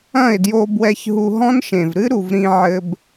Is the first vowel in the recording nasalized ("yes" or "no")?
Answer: yes